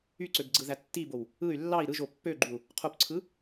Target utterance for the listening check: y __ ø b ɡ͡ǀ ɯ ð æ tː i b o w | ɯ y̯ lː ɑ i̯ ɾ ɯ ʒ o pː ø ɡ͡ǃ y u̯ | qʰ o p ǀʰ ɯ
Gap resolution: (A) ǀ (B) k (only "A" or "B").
A